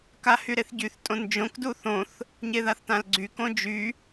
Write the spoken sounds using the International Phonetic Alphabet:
k a h y ɾ e θ ɟ y θ tʼ õ n d͡ʒ õ k d u θ õ θ | ɲ e ð a θ t ã l ɡ͡ǀ y k õ d͡ʒ y

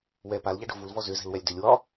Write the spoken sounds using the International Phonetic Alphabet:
w ɛ p a l ʎ a ɖ o̤ v u l v ɔ z ʏ z ɛ̤ l w ɛ lʲ d ʏ lʲ w ɒ

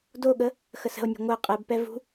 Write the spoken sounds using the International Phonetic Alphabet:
d o ɠ ə | x ə s ə̤ o̯ nʲ e̤ ŋʷ ɛ qʼ ɛ b p ɛ v ṳ

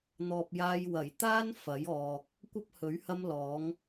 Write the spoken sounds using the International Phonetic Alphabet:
n̪ ɔː˨ p̚ j aː˧ j w ɐ˨˩ j t̪ aː˥ n f ɐ˨˥ j ɔː˨ k̚ | kʷ ɐ˥ p̚ h ɵ˨˥ ɥ h ɐ˥ m l ɔː˨˥ ŋ

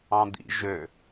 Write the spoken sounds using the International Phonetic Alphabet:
ɑ̃ d̪ ḭ ʒ ø

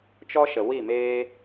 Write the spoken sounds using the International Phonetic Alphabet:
t͡ʃ ɔ˦ ʃ ə˨ w i˦˨ m eː˦

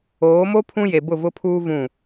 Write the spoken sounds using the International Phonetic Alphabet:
oː˨˦ m o˦ pʰ ũ˦ j e˨ b ʊ˦˨ v ʊ˦ pʰ uː˦ v ũ˦˨

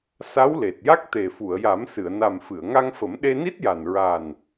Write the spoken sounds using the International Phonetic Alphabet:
s a˧˥ w l e˨˩ t̚ j a˦˥ k̚ t̪ e˨˩ f u˨˩˨ ə̯ j a˨˩˦ m s ɨ˨˩˨ ə̯ n a˨˩ m f ɨ˨˩˨ ə̯ ŋ a˧ ŋ f ə˨˩˦ m ɗ e˧ n i˦˥ t̚ j a˨˩ n ɹ a˨˩ n

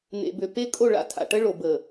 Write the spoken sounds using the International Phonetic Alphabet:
n̪ ḛ˨ b ø˨ p e˦ kʼ o˦˨ ɭ a̰˦ tʰ a̰˨ ʈ ə˦ ɭ o˨ b ə˨

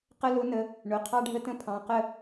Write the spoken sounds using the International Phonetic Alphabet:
q ə˦ l ʊ˨˥ n ə˩˧˩ | ɳ ʊ˩˧˩ qʰ ɑ˦ ɖʱ ə˦ t ə̃˦ pʰ ɑ̃˩˧˩ q ə˥˩

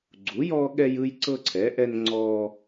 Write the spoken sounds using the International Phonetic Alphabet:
ɡ͡ǀ u˨˥ j ɔ˦ ɠ ɛ˦ j ɯ˦ j ǀ ɤ˦ ǀʰ ɛ˨˥ ʔ ɛ˦ n ŋ͡ǀ ɔ˦

